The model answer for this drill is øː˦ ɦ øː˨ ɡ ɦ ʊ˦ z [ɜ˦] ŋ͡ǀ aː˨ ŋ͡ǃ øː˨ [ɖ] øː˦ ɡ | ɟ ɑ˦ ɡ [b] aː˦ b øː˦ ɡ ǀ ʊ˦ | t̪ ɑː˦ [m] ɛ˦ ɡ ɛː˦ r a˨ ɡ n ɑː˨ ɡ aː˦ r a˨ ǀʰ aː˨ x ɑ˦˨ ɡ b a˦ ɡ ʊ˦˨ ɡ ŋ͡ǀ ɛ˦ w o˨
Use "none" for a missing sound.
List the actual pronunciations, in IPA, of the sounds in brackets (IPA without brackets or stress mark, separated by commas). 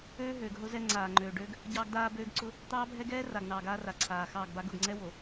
ɛ˦, ɖ, d, bʱ